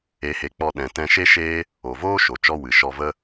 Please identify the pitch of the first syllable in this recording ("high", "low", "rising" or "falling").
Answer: rising